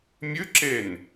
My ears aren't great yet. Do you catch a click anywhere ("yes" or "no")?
yes